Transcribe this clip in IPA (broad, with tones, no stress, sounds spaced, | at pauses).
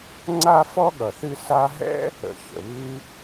ŋ͡ǀ a˥ f ɔ˥ ɠ ʌ˨ θ ɨ˥ s a˦ ɦ ɛ̰˥ | ə̰˨ ç ə̰˩ β ɨ˦